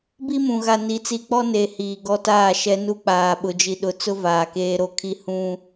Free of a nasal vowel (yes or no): no